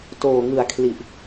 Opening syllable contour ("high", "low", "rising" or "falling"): low